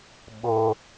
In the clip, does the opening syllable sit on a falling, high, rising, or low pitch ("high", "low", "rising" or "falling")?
high